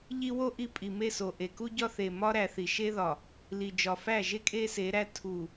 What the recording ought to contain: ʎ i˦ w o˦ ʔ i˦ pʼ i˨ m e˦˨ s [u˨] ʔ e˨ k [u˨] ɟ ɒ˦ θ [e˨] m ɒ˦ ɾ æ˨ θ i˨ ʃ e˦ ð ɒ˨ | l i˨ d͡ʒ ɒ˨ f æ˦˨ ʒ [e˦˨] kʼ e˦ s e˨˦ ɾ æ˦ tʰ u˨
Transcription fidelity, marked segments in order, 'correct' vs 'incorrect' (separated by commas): incorrect, incorrect, correct, incorrect